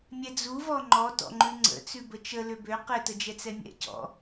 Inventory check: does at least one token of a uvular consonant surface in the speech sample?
yes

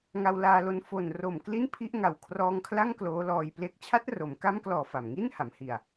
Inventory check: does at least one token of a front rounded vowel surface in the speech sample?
no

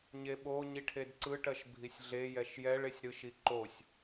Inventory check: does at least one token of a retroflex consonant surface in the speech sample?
yes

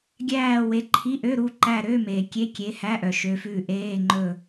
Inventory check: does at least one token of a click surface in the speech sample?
yes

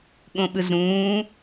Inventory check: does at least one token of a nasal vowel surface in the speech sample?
yes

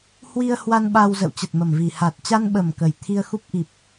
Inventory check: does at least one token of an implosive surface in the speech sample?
yes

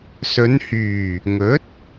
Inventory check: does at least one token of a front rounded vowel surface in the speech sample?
yes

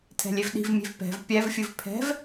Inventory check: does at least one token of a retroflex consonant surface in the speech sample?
no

